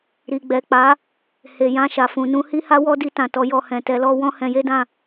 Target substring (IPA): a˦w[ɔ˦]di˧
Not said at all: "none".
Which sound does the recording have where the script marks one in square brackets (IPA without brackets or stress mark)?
ɔ˦